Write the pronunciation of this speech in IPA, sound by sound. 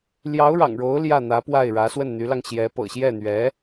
l j ɑ˧˥ ʊ̯ ɻ ɑ̰˨˩ ŋ ɻ o˧˥ ʊ̯ l j ä˥˩ n̪ ä˧˥ p w a˥˩ ɪ̯ ɻ ä˧˥ s w ə˥˩ n n̪ y˧˥ l ɑ˧ ŋ ɕ j ɛ˧˥ p ɤ̰˨˩ ɕ j ɛ˥˩ n̪ ɥ ɛ˧˥

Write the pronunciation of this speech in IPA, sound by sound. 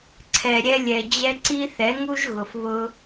ǀʰ ɛ˨ ɾʲ ɛ˧ lʲ ɛ˨ d͡ʑ ɛ˧ ǀ i˦ θ ɛ˨˦ ŋ u˦ ʒ ɣ ʊ˨ f β ʊ˧

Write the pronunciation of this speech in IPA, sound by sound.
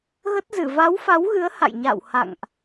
ɣ ə˦˥ t̚ z ɨ˧˩ v a˨˦ w f a˨˦ w ɣ ɨ˨˦ ə̯ h a̰˧˨ j ɲ a̰ː˧˨ w h a̰˧˨ ŋ ʔ

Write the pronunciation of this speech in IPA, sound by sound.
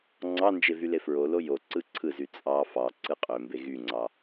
ŋ͡ǀ ɑ n d͡ʒ e v y l e f ɹ o l o j o ǀ ɯ ǀʰ ɯ z y t͡sʼ ɑ f ɑ ǀ ɯ qʼ ø m b e ɣ y ŋ͡ǀ ɑ

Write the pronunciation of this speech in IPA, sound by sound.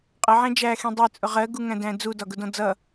qʼ ə ʕ æ̃ d͡ʒ æ x ĩ dˤ ɛ t͡sʼ ʊ ʁ ɜ ɡ u ŋ æ̃ d æ̃ d͡z u d ɒ ɡ ʊ d ɔ̃ d͡z ʌ

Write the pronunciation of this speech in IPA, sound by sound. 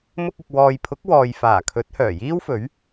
m ʊ˧ k̚ ɪ˨ k̚ w ɔː˨ j pʰ ʊ˨˥ k̚ w ɔː˨ j f aː˨˩ kʰ ɵ˨˥ t̚ h œː˨˩ j iː˥ w f ɵ˨˥ ɥ

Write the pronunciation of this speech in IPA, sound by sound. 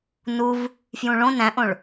n u v | f j ũ ɭ õ n æ̃ ʔ õ ɭ

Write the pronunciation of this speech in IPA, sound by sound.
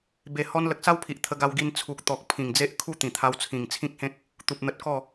b e˨˩ h ɔ˧ n l ə˨ k̚ s a˦ w pʰ i˨ ʔ t̪ʰ ə˧ ɡ a˧ w ɡ i˧ n t͡sʰ u˨ k̚ t̪ ɔ˨ k̚ pʰ ĩ˨˩ ŋ d͡z e˦ ʔ kʰ u˥˧ t̪ ĩ˨˩ t̪ʰ a˧ w t͡sʰ ĩ˨˩ ŋ t͡sʰ ĩ˦ k̚ h ẽ˦ k̚ | t̪ u˨ p̚ n̪ ə˨ t̚ k ɔ˥˧

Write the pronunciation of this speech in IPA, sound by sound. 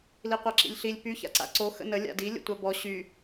l i qʷ a ǁ ḭ lʲ ɬ i lʲ p y ç a̰ ǀ a̰ ǀ o x ə̰ n ə lʲ a̰ d i lʲ ə̰ tʷ a b ɔ ɕ y

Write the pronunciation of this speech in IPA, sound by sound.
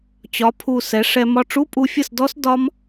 t͡ɕ ɒ˩˧ pʰ u˨˩ s ɛ˩˧ ʂ ɛ˧ m ɒ˧ ʈ͡ʂ u˧˥˧ pʼ u˧ fʲ ə˥˩ s d ɔ˦˥ s d ɒ˦˥ m

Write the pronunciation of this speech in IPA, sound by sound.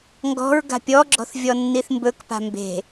ŋ ɡ ɔ̤ ɹ ɡ a̤ pʲ ɔ ɡ͡ǁ ɔ̤ θ vʲ ɔ nː i θ m b ɵ k p a̤ m b e̤

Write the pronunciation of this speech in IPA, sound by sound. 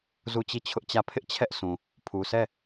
z u˦˨ t͡ɕ i˦˨ t͡ɕʰ ʊ˦ ʔ t͡ɕ ä˦˨ pʰ ɪ˦ ʔ t͡ɕʰ ɛ˦ ʔ sʰ ũ˨ | pʰ u˨ sʰ ɛ˦˨

